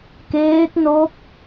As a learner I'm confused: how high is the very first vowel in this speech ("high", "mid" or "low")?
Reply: mid